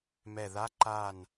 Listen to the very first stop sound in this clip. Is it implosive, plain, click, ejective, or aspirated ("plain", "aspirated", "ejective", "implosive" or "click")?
click